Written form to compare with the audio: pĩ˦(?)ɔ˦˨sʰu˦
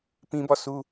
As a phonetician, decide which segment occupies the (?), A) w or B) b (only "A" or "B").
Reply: B